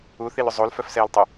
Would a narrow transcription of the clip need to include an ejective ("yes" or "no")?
no